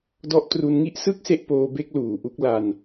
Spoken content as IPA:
d ɔ˦˥ ʔ t r u˧ n ŋ i˦˥ ʔ s ɯ˥˩ k̚ s e˦˥ ʔ p oː˧ b e˦˥ k̚ l uː˨˩ ʔ u˦˥ k̚ l a˧ n

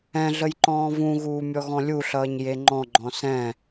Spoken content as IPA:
ɛ̃ ɮ ə j ǃ ɔ̃ː v ũ ɣ uː mʲ ɔ ɣ ɔ̃ lʲ u ɬ ʌː ɲ j e ŋ͡ǃ ɔ̃ ɡ͡ǃ ɔ̃ s ɛ̃

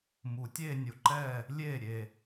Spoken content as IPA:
m u˨˩˦ tʲ eː˥˧ nʲ o˨˩ ǃ ɛː˥˩ | lʲ eː˥˩ ɾʲ e˨˩

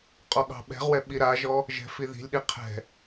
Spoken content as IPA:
qʼ ɔ ɠ ɑ̤ ɓ ɛ̤ ʁ w ɛ ɓ i ɾ a ʒ ɔ | ʒ ɛ̤ f i ð i̤ lʲ ɗ i qʰ ɛ̤

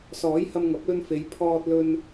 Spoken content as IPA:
s ɔː˨˥ j h ɐ˧ m ŋ ɐ˨˥ p̚ l ɵ˧ n f e˨˧ j pʰ ɔː˧ t̚ l ɵ˧ n

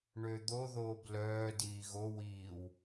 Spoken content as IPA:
ɳ ø d̪ o ð oː b l œː d iː ɣ o w iː w

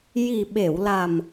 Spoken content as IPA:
j i˨˩ ɓ e˨˩˨ w l a˨˩ m

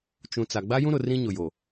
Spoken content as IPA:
t͡ʃ ũ˨ t͡s a˨ ɡ͡b a˦ j ũ˦ ɾ ʊ˨ r ĩ˦ ɲ ʊ˨ j o˨

